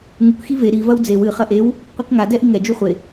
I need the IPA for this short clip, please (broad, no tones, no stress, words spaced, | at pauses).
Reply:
ŋuk xive ɾi vɐwd͡zew ɨ χɐʔew | qʷikŋa dɛʔiŋɛ d͡ʒuχʷe